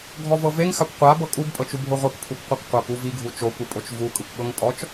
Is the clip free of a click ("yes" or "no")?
yes